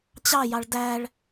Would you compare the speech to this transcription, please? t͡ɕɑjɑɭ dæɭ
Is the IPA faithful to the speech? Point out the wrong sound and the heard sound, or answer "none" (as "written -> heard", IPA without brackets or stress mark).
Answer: none